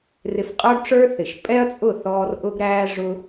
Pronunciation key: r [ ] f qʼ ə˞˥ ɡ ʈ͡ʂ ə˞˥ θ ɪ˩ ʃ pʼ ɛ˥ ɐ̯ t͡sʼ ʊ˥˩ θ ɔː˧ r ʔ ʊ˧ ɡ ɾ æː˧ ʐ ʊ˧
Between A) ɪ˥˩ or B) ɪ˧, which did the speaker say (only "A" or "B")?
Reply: B